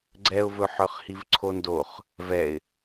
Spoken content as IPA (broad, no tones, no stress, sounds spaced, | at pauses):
ɡ͡ǀ ɛ ʊ̯ v ɵ ħ œ χ h i v ǀʰ o n d o χ | v ɛ ɪ̯